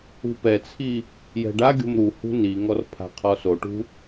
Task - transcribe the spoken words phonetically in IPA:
ṳ p ɛ t͡sʰ i | j ɛ̤ ɖ a ɡʲ o̤ m ɾ u h ṳ n i ŋ ɔ r pʰ a̤ qʰ ɔ s o ʈ ṳ

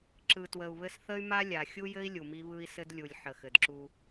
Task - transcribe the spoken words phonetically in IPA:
ǁ ɯ˨ t w ə˨ u̯ β ɘ˦ s θ ə˦ y̯ m a˦ lʲ a˨ xʲ u˦ j ɘ˦ i̯ lʲ u˨ m i˦ β ɯ˦ i̯ s ɘ˦ d lʲ u˨ lʲ ħ ə˨ x ɘ˨ d ǁ u˦

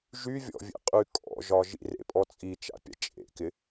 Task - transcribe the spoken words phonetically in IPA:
ʒ y vʲ ɔ̰ vʲ ḛ qʼ y kʼ ɔ̰ ʒ ɒ ʒ ḭ r ḛ pʼ ɔ t͡sʼ i t͡ʃ a̰ pʲ a̰ t͡ʃʼ ḛ k ɪ

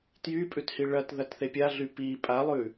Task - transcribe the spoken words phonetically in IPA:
t j y pʼ ʉ t h i ɭ ɐ t ð ɐ t θ e pʲ a ɮ y p i pʼ a lˠ ʉ

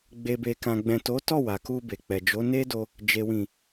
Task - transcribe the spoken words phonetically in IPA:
ɡ͡b e˨ b e˨ k ã˨ ɡ͡b ɛ̃˨ t o˨˦ t ɔ˦˨ w a˨ k u˧ b e˨ k͡p ɛ˨ d͡ʒ o˨˦ n e˦ d o˧ | d͡ʒ e˨ w ĩ˨

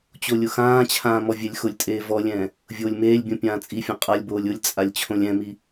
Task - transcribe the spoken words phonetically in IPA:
t͡ɕ o lʲ ʊ x ãː t͡ɕʰ ãː m ɔ vʲ ɛ lʲ x ʊ lʲ tʼ eː v ɔ lʲ ɛ̃ː | vʲ oː lʲ m eː lʲ bʲ õ pʲ ãː t͡sʼ i fʲ ɔ̃ qʼ a lʲ b oː lʲ ʊ lʲ t͡sʼ a lʲ t͡ɕʰ õ lʲ ɛ̃ m i

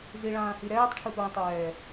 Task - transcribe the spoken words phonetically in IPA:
z i ɭ ãː h i ɾ ɛː tˤ ʈʰ ɯ p ɹ ĩ tˤ ɛː

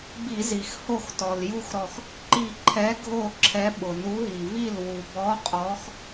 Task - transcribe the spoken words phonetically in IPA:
b i˧˩˧ z i˩ x h o˥˩ x t ɔ˩ l j u˥˩ x ɾ ɔ˧˩ x | ǃ i˧˩ ǃʰ ɛ˨˥ ɡʱ o˥˩ ǁʰ ɛ˨˥ ɓ ʊ˩ n u˨˥ ɦ i˩ v i˥˩ l w u˩ b ɔ˨˥ qʼ ɔ˨˥ x

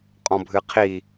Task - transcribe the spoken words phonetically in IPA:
qʼ ɔ̃ bʱ ɨ qʰ i

